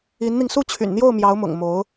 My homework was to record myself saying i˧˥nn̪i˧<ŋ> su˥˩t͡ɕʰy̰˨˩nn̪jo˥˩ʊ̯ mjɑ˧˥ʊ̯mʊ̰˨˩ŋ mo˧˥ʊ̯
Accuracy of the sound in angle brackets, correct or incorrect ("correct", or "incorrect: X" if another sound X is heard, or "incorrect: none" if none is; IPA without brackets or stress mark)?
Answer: correct